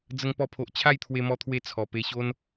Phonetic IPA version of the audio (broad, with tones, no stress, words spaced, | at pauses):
d͡zə˧ŋpɔ˧pʰo˨ʔ t͡ɕʰa˥˧jt̪ʰwe˧mɔ˧t̪ʰwe˧ t͡sʰɔ˨˩pe˧ɕo˦n